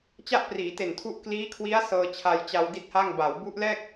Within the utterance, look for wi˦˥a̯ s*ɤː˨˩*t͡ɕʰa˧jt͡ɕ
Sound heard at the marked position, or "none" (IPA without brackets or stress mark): ɤː˧